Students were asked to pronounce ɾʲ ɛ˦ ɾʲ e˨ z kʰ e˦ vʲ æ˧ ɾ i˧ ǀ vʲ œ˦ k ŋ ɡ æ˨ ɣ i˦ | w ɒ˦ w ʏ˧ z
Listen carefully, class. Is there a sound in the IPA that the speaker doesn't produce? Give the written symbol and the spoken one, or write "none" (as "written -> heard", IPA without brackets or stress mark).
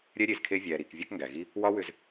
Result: ǀ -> k